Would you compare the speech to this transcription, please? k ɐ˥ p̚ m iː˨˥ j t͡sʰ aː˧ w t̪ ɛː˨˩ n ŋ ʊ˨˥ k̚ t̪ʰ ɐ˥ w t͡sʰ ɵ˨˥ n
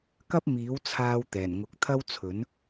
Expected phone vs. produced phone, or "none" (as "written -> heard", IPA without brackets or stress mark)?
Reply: j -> w